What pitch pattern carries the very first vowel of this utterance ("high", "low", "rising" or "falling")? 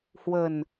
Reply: low